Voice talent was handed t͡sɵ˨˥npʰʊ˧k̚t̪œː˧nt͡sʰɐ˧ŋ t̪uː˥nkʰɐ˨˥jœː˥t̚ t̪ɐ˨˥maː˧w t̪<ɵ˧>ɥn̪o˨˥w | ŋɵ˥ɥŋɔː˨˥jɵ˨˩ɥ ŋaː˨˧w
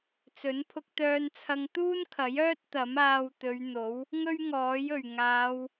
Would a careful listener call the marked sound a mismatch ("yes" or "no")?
yes